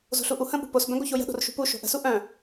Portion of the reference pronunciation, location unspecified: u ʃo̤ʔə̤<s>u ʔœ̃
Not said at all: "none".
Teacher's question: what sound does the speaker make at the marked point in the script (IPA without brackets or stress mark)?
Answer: s